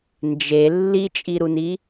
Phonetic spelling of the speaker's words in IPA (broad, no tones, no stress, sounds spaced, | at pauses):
n d͡ʒ e lː i t͡ʃʼ i ɾ u n i